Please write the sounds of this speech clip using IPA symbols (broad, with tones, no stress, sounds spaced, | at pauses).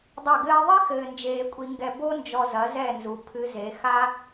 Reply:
dˤ ɐ˦˨ ɡ ɘː˦ ðˤ i˦ x ɘː˨ n d͡ʒ eː˨ kʷʼ i˧ ŋ ɡ ɛ˧ b o˦ n d͡ʒ ɔ˧ z ɐ˨˦ z ɛ˦˨ n z u˨ pʰ ɨ˧ z e˨˦ x a˦